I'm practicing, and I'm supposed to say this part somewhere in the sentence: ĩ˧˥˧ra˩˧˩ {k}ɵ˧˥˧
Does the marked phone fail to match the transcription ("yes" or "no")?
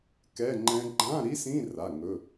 yes